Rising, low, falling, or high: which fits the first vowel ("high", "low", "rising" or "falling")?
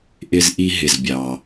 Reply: high